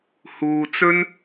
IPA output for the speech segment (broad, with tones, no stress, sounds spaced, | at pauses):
h uː˨ t͡s ɵ˥ n